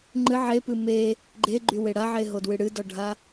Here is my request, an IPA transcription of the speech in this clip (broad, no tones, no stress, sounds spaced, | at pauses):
ŋ͡ǃ ɨ ʕ e p ɨ m e | ɡ͡ǃ e ɡ͡ǃ y w e ɽ a ʕ e ɦ o d w ɨ ɽ ɨ d ɔ ɖʱ a